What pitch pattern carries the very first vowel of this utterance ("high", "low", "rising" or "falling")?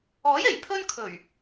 rising